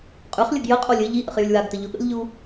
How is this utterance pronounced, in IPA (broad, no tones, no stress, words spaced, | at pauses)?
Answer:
qʼʉχlʲəɡ jəqʼolʲ ɘ ʎiʔə̰χ jʉlʲwaɡtə ʎʊɠə̰lʲʎu